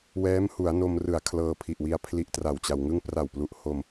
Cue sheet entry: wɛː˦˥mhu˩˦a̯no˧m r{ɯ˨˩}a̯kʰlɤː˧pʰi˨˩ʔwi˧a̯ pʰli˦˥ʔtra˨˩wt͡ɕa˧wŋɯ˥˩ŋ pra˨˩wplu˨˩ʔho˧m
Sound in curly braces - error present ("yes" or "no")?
no